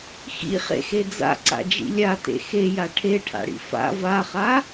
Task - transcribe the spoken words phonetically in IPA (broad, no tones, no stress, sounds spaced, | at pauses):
x ḭ χ ḛ x e d͡z a̰ ǀ a̰ d͡ʒ ḭ lʲ a t ḛ x e j a ʈʰ e ʈʰ a̰ ɽ ḭ f a̰ v a χ a